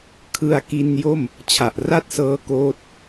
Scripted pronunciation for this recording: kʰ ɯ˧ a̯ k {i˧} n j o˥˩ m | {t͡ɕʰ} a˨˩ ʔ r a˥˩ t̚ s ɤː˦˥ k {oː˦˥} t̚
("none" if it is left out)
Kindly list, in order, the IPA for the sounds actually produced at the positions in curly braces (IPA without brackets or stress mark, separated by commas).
i˧, t͡ɕʰ, oː˦˥